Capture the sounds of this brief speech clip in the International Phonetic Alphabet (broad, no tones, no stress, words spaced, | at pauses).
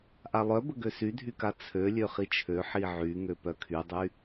ʔalˠœbə ɡøsydʱyka t͡sʰø lʲøχit͡ʃʰø ħiʕy ŋøpœkʰydˤy